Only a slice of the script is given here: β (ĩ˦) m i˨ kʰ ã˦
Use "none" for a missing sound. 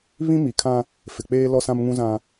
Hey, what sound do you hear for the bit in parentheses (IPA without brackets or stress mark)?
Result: ĩ˦